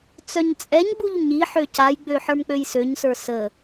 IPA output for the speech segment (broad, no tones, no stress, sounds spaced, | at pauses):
t͡s œ ɲ t͡sʼ ɛ ɲ ɡ͡b u ʎ ɲ i ħ ø c a j ɡ͡b ø ħ ə˞ m k͡p ø j s ø ɲ s ə˞ s ə